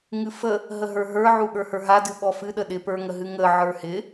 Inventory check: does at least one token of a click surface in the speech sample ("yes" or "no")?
no